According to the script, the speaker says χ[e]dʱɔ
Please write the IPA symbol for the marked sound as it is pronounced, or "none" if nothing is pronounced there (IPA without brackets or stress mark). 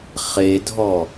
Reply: e